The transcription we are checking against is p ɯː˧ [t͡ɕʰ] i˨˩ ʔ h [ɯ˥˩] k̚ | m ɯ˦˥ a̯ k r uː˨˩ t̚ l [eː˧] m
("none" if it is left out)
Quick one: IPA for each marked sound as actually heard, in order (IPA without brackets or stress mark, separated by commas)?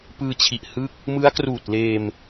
t͡ɕʰ, ɯ˥˩, eː˧